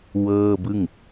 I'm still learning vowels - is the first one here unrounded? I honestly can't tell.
yes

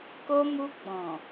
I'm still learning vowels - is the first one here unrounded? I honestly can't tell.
no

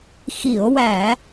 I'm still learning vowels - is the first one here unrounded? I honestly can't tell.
yes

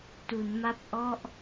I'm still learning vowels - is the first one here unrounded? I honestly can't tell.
no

